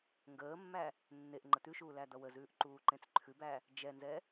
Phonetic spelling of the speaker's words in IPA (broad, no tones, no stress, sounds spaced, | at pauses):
ŋ ɡ əː mː æ | nː e ʔ ŋ͡ǃ ə t̪ ʉ ʃ uː l æ d̪ ʌ w ə z ʉː ʔ ǃ uː ǃ ẽ t͡s ǃʰ ʉ b æ | d͡ʒ ɛ n z ɛ